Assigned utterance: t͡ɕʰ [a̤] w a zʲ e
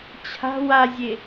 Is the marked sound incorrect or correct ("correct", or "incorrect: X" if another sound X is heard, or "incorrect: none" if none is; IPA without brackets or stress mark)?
correct